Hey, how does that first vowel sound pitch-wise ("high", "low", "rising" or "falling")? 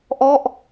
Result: falling